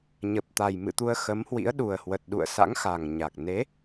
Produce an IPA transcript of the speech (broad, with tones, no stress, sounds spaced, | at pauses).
ɲ ə˨˩ p̚ t̪ a˨˩ j m ɨ̰˧˨ t̪ u˧ ə̯ x ə˨˦ m h w ḭ˧˥ ə̯ ɗ u˨˩ ə̯ h w ə˨˩ t̚ ɗ ṵ˧˨ ə̯ s a̰˧˥ ŋ x a˨˩ ŋ ɲ a˨˩ k̚ n e˨˦